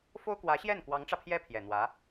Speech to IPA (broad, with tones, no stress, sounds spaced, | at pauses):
f o˥ ʊ̯ k w ä˧˥ ɕ j ɛ˥˩ n k w ɑ˧˥ ŋ ʈ͡ʂ ä˧ pʰ j ɛ˥ pʰ j ɛ˨˩ n̪ w ä˧˥